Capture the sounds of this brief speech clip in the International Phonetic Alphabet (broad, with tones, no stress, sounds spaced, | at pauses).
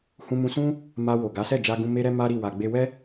h ũ˧ m ũ˧ s ũ˦ | m a˧ w o˨ ɡ a˨˦ s ɛ˦˨ d͡ʒ a˧ ɡ ũ˧ m e˦ ɾ ɛ˦ m a˦ ɾ i˦˨ w a˨ ɡ͡b e˧ w ɛ˦